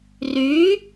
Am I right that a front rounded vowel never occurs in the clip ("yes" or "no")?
no